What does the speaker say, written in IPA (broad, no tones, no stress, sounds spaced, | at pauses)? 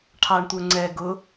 ʈʰ ɑ ɳ tʷ ə˞ ŋ͡ǀ ɛ ɡ ʊ